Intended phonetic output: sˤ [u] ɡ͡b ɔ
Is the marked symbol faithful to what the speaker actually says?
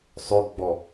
no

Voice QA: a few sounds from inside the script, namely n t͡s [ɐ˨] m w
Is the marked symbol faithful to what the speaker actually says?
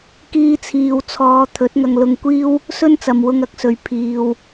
yes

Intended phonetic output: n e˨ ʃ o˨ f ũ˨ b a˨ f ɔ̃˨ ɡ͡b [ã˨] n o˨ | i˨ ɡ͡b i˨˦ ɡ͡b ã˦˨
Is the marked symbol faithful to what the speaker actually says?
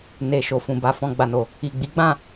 no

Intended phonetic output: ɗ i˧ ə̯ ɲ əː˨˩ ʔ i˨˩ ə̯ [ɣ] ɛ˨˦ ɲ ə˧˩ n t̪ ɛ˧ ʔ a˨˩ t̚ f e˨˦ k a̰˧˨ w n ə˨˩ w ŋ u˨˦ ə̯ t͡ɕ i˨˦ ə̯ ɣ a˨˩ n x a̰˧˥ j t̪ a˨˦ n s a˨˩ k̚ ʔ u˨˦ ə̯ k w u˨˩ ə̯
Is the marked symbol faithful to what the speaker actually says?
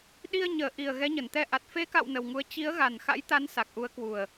yes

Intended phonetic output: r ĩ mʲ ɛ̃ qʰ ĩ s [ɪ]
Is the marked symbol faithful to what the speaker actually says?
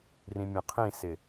yes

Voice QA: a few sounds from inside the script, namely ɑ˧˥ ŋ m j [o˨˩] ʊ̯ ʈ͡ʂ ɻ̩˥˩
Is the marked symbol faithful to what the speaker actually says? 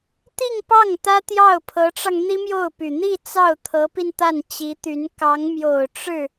yes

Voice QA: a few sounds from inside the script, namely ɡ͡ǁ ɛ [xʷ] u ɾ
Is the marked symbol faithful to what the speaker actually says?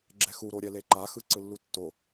no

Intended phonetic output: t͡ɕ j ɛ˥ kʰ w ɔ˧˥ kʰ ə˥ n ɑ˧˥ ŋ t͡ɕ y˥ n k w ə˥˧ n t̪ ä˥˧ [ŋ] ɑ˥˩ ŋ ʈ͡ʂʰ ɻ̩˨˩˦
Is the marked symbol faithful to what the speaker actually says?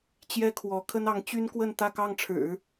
no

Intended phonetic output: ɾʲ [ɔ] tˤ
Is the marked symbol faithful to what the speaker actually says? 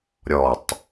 yes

